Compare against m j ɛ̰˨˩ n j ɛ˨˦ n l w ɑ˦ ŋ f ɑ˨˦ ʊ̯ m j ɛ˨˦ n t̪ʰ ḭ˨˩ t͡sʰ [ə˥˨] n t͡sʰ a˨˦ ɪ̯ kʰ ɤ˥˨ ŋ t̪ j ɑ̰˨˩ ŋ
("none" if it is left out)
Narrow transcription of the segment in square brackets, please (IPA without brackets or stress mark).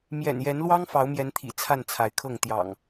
a˥˨